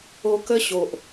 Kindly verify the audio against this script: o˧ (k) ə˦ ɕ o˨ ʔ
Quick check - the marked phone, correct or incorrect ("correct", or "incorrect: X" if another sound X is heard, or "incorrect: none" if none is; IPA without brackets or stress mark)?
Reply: correct